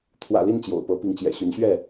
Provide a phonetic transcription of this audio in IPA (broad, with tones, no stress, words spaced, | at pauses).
t̪ʰwä̰˨˩ li˥˨nt͡ɕjo̰˨˩ʊ̯pɤ˨˦pi˨˦ŋ t͡ɕjɛ̰˨˩ɕy˨˦nɕɥɛ˥˨